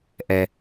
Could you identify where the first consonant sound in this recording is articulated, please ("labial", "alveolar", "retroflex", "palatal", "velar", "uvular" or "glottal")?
glottal